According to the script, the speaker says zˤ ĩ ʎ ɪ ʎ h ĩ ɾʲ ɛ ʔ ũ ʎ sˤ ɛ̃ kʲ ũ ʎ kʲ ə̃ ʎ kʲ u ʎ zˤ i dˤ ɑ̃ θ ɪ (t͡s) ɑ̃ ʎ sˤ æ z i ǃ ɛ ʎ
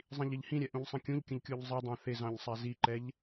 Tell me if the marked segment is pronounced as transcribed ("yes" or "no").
no